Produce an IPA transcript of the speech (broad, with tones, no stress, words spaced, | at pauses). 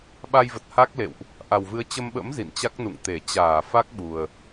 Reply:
ɓa˧jvə˨˩t̚ ha˦˥k̚lḛ˧˨wʔ | ʔa˨˩wvɨ˨˦ə̯t͡ɕə˧mɓə̰˧˥m zḭ˧˨nt͡ɕa˦˥k̚nṵ˧˨ŋt̪e˧˩ t͡ɕaː˧˩fa˦˥k̚ɓu˨˩ə̯